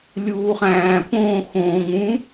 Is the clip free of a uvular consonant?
no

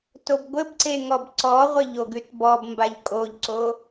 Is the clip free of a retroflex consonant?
yes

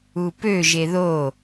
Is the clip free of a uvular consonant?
yes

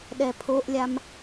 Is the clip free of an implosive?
no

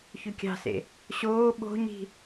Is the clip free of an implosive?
no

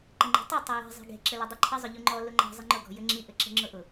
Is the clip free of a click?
no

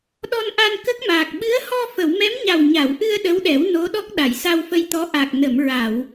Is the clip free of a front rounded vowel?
yes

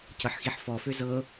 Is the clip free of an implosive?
yes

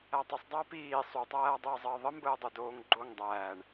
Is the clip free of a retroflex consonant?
no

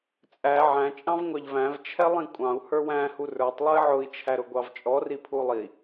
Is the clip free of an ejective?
no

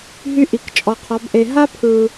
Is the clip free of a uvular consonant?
no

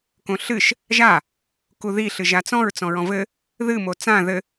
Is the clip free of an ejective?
yes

